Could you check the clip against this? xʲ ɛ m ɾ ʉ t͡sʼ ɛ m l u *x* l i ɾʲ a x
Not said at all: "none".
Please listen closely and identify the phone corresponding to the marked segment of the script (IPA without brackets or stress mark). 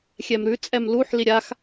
ħ